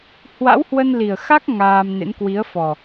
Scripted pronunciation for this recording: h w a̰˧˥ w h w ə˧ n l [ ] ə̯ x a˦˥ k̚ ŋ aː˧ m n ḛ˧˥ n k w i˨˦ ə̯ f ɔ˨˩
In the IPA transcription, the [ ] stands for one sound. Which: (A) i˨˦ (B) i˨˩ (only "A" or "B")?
B